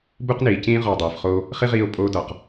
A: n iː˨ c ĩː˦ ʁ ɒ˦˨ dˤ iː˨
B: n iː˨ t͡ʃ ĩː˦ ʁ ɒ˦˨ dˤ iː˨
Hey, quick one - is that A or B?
A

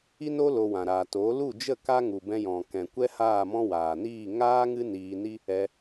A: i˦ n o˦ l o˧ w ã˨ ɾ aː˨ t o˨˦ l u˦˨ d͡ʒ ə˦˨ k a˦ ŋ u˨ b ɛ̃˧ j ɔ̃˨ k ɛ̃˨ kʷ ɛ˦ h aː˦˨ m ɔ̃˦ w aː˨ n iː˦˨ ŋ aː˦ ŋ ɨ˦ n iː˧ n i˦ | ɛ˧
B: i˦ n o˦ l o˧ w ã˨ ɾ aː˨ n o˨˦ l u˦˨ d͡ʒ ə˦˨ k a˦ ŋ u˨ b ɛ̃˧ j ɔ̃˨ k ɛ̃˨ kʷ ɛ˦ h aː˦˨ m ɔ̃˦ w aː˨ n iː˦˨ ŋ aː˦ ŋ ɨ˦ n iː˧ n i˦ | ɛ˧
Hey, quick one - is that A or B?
A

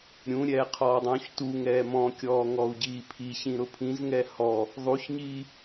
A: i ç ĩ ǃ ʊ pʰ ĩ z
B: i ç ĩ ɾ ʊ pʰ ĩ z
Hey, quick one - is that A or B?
B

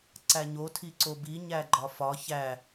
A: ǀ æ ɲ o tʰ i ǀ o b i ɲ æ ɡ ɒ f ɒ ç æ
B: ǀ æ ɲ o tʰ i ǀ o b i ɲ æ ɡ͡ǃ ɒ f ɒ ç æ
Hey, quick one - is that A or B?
B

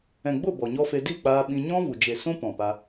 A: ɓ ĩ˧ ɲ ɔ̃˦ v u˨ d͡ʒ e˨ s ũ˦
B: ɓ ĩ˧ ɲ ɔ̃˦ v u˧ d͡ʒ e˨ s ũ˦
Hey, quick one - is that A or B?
A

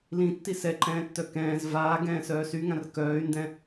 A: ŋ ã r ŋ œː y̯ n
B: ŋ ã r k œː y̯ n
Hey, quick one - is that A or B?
B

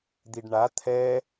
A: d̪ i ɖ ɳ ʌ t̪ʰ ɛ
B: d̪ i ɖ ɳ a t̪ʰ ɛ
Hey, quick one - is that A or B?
B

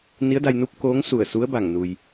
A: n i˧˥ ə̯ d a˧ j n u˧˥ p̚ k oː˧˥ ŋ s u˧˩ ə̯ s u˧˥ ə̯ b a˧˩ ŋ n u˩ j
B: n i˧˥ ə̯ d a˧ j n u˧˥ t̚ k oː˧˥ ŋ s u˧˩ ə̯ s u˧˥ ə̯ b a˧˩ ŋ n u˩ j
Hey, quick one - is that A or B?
A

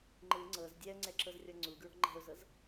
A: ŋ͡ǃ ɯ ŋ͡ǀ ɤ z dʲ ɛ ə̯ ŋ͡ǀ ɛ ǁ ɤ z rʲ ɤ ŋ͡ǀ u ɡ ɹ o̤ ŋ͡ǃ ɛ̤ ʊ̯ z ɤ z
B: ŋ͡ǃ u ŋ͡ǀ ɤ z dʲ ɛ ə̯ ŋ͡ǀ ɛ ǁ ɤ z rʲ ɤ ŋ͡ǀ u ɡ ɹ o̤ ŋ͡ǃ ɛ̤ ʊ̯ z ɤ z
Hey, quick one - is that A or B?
A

